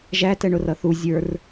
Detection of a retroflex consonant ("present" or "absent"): present